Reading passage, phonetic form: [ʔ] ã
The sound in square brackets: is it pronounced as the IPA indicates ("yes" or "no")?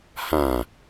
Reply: no